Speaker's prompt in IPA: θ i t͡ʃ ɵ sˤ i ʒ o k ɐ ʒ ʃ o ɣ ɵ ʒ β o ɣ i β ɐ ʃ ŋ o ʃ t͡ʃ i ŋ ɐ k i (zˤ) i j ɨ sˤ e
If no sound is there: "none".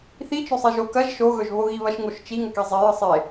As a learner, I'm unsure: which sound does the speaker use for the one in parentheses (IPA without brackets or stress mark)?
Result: zˤ